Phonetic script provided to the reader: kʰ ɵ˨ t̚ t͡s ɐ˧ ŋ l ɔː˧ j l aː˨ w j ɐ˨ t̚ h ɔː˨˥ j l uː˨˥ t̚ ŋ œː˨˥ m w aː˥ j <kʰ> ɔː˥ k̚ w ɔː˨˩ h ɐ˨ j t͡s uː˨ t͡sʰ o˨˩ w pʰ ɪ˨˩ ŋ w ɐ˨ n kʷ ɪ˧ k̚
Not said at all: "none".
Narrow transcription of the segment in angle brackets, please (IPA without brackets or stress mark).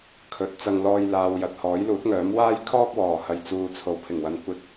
kʰ